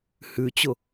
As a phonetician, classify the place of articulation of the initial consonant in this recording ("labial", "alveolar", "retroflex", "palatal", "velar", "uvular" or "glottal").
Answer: glottal